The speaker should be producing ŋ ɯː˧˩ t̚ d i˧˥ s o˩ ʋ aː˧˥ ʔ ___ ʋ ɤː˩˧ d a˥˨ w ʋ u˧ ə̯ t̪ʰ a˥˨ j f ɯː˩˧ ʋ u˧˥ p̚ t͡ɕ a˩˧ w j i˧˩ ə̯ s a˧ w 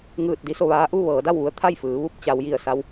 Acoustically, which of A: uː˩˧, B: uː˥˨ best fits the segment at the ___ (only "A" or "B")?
B